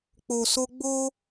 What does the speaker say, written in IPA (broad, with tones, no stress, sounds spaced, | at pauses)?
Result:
k͡p o˨ s o˧ ɡ͡b o˦